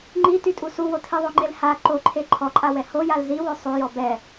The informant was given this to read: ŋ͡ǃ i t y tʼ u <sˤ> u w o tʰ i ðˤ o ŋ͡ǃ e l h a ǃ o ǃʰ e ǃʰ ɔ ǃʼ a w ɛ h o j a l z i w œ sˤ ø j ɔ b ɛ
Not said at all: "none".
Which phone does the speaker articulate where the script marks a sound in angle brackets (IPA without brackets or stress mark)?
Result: s